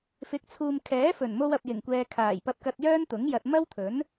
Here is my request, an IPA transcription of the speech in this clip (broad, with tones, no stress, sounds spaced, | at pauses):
f ɪ˨˥ k̚ t͡sʰ uː˨ m kʰ ɛː˨˥ f ɵ˨˩ n m o˧ w ɐ˨ p̚ j ɪ˨˩ ŋ kʷ ɛː˨ kʰ aː˨˩ j p ɐ˧ p̚ k ɐ˧ t̚ j œː˥ n t̪ ʊ˨˥ ŋ j ɐ˨ t̚ m ɐ˥ w t̪ʰ ɵ˨˥ n